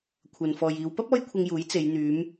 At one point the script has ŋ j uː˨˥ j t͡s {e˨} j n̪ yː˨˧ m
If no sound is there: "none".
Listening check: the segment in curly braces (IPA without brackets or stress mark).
e˨˧